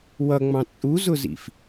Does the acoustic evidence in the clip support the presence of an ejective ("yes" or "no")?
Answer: yes